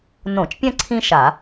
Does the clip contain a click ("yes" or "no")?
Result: yes